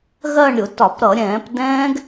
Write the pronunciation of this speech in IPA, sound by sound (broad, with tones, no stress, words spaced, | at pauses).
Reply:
ɣɜ˥˧ɳɾʲʊ˧˩˧ tɒ˧˩˧p ɾʌ˧˩˧ɾʲɛ̃ː˧˩˧p dɛ̃ː˦˥ɡ